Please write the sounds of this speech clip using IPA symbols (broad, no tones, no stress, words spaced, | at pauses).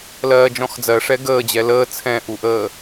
lɜːd͡ʒɔ̃xd͡zɜʂɛ ɡəːd͡ʑɛ ləː t͡sʰɛ̃ʔuʔəː